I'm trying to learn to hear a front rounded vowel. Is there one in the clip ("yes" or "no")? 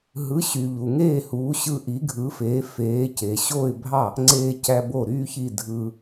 yes